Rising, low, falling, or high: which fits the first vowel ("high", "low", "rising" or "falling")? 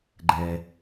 low